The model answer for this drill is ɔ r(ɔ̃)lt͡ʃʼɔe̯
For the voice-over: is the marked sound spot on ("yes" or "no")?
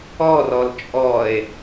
no